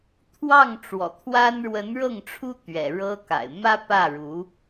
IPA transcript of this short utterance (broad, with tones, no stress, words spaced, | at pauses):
t̪ʰwɑ˥˩ŋ ʈ͡ʂwɔ̰˨˩t̪ʰwa˥n ɻwə˧˥nɻɤ˥˩ŋʈ͡ʂʰu˥ t̪ɥɛ̰˨˩ ɻɤ˥ka̰˨˩ɪ̯ mä˥pä˥˩ ɻu˧˥